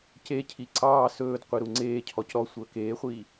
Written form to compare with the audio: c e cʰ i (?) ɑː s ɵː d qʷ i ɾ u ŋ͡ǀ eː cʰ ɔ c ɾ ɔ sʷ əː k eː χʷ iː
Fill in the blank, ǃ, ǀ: ǀ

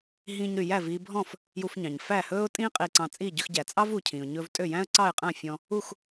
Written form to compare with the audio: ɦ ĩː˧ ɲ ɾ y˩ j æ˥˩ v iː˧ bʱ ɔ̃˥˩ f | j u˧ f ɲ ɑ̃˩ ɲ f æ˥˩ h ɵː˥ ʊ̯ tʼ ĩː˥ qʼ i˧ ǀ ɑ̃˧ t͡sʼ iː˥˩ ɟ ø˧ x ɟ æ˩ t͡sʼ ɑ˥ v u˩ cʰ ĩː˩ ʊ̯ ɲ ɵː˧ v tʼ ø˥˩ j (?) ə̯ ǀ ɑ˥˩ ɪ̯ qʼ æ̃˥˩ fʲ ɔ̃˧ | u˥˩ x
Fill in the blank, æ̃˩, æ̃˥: æ̃˥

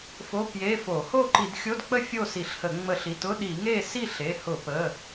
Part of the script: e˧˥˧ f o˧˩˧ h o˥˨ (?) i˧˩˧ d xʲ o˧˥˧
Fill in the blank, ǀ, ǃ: ǃ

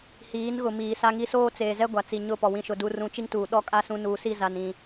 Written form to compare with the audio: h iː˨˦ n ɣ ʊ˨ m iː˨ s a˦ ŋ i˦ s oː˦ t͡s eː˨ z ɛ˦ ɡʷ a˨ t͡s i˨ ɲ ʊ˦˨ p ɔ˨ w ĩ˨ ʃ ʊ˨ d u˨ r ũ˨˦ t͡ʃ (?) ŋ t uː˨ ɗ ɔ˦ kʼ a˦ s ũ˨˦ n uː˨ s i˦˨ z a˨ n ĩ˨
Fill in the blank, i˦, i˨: i˦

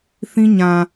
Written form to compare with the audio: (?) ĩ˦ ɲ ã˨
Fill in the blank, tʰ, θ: θ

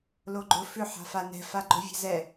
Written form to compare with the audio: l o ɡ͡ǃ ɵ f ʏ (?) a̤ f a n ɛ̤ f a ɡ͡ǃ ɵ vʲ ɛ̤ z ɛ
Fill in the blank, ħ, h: ħ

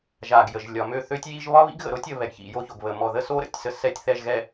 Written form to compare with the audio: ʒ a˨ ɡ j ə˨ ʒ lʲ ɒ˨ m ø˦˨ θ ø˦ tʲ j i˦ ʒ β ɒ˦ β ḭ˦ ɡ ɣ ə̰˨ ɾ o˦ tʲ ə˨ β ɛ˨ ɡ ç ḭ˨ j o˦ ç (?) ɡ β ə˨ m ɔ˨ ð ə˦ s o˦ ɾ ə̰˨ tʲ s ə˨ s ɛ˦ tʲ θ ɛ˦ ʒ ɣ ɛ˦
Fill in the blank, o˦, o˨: o˨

